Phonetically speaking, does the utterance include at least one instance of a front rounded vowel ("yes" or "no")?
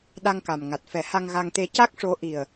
no